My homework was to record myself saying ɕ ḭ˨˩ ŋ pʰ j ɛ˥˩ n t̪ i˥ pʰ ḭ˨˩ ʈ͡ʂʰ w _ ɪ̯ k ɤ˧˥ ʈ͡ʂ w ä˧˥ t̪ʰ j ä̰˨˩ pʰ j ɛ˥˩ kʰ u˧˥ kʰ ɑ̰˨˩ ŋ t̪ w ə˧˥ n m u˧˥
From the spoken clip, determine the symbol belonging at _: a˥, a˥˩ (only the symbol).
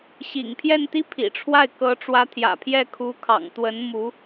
a˥˩